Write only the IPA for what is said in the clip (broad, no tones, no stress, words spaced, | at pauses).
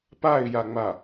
paɪ̯jaŋ͡ma